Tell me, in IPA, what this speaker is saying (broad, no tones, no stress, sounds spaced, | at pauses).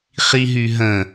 χ i ɦ y ɦ ə̃